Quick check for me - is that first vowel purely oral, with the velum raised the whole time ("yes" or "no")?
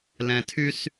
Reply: no